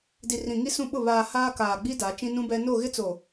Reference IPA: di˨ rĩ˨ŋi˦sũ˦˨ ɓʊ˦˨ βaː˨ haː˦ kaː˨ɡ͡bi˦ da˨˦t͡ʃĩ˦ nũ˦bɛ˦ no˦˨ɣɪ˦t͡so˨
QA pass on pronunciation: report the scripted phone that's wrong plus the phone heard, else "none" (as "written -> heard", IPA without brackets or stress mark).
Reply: none